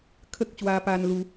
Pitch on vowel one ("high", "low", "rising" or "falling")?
high